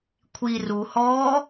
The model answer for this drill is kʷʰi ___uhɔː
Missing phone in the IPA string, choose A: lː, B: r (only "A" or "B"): B